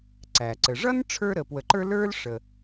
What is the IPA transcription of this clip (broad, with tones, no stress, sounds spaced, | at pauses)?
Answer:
ǀ æ˩ ǀ ə˩ ʐ ʌ˥ n ʈ͡ʂʰ ə˞˧ ɾ ə˩ p w ə˩ ǃ ə˞˧ l ə˞˥ l ʂ ə˩